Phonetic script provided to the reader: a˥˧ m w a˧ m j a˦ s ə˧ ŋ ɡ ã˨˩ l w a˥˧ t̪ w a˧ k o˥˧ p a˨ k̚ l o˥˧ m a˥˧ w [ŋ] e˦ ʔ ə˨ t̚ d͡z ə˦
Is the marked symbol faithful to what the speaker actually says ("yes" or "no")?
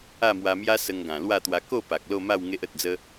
yes